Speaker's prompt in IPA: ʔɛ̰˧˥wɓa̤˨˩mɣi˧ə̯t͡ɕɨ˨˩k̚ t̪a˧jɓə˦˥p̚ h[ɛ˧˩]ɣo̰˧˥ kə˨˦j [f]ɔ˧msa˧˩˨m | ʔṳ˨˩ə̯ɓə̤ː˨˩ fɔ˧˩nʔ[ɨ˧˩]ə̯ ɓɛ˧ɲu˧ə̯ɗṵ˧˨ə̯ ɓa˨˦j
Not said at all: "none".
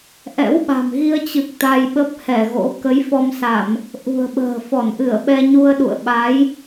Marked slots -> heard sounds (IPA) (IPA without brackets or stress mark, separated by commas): ɛ˧˩, f, ɨ˧˩